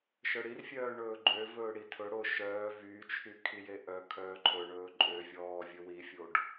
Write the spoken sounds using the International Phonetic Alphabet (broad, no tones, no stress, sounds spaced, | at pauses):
ʃ œ ɽ i r fʲ œː ɳ ɵː ɡ͡ǃ ø v ɵː ɽ i tʰ ɵ ɽ o ʃ œː v y t͡ʃʰ y kʰ i j e ʔ œ kʰ œː ǃʰ ɵ ɳ ɵː ǃʼ ø vʲ ɔː vʲ ɵ w i fʲ o ɖ